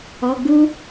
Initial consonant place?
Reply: velar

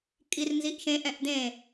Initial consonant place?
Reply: velar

